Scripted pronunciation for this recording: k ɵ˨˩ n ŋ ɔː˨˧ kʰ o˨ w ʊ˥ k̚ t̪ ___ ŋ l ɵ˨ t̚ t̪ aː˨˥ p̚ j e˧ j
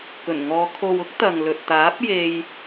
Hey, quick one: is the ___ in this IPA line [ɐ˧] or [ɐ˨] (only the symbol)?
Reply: ɐ˨